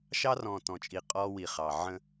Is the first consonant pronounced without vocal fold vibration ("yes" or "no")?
yes